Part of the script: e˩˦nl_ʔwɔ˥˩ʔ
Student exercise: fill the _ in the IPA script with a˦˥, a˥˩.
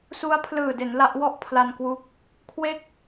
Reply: a˦˥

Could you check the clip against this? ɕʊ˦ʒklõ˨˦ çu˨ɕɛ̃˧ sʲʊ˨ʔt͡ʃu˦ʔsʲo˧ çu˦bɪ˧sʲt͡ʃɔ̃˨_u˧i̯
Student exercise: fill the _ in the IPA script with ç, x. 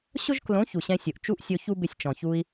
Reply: ç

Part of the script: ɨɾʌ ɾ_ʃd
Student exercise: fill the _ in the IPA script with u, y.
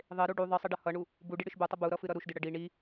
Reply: u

